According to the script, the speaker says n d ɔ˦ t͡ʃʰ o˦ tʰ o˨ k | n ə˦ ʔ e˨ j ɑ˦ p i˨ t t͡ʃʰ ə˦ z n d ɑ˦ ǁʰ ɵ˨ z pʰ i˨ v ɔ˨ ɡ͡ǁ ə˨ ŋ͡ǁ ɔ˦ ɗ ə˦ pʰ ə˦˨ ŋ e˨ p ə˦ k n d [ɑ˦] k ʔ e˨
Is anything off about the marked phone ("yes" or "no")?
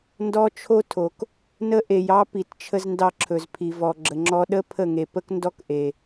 yes